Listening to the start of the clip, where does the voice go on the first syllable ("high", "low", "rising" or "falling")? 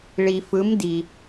low